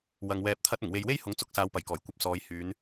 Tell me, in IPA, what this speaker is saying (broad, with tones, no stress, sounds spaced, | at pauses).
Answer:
w ɐ˨ ŋ w ɛː˧ p̚ t̪ʰ ɐ˥ t̚ ʊ˨˩ ŋ w e˨ j w e˥ j h ʊ˨˥ ŋ t͡s ʊ˨˥ k̚ s aː˨˧ w p ɐ˨˩ j k ɔː˨˩ j kʷ ɐ˨˥ p̚ s ɔː˨˧ j h yː˨˧ n